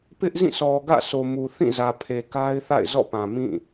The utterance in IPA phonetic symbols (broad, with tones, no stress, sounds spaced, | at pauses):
p ɪ˦ ʔ z ĩ˦˨ s ɔ˨ ɡ ä̰˦˨ sʰ o˨ m u˨ θ ĩ˦˨ z ä˨ pʰ e˨ k a˦ ɪ̯ θ a̰˦˨ ɪ̯ z ɔ̰˦˨ p ã˨ m ĩ˦˨